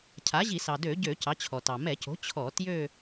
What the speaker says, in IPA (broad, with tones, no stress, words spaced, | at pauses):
cʰa˩˥ʑi˧˩˧ sɑ˩dø˧˩˧ɟø˧˩˧ cɑ˩˥t͡ɕʰɔ˩tɑ˩ mɛ˧˩˧co̤˩˥ t͡ɕʰɔ˧˩˧tjø˥˧